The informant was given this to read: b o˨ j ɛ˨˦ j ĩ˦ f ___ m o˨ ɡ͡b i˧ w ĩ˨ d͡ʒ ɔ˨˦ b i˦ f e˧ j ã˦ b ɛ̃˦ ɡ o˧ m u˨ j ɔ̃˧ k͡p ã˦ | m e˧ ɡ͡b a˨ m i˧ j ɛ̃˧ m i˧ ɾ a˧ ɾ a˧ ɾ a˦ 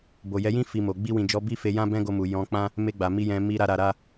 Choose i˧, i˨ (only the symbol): i˧